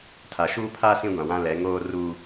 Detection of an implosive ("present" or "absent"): absent